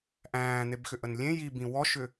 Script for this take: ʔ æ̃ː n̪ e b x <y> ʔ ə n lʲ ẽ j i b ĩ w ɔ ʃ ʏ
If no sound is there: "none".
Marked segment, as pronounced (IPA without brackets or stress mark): ʏ